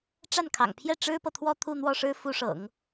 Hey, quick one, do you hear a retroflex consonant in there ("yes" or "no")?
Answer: yes